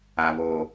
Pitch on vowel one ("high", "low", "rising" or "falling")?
high